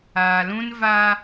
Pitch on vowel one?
low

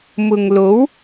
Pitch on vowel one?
low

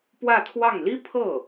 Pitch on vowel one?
falling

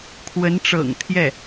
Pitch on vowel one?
rising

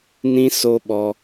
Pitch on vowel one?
high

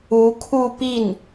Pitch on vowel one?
rising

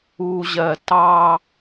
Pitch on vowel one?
low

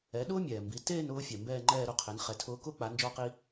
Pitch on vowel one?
rising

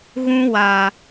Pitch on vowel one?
high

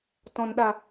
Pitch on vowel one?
low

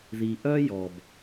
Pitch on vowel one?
low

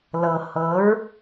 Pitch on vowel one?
low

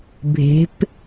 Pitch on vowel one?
rising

